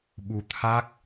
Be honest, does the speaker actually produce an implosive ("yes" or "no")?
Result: yes